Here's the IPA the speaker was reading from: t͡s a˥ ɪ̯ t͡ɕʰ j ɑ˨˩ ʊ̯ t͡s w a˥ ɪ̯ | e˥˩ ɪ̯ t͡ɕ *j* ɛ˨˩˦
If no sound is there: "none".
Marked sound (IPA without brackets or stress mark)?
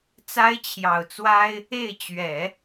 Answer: ɥ